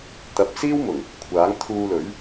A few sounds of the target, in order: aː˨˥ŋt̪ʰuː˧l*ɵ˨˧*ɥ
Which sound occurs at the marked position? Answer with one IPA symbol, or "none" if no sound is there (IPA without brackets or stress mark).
ɵ˨˥